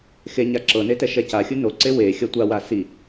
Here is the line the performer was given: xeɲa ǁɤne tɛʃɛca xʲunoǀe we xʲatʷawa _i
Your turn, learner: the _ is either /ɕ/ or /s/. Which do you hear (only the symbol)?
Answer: s